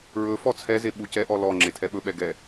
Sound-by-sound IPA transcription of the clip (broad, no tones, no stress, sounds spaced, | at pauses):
ɹ ɵ f ɔ t͡sʰ ɛ z e ɓ u c ɛ ʔ ɔ l ɔ ŋ͡ǁ e tʰ ɛ ɓ ɵ ɓ ɛ ɡ ɛ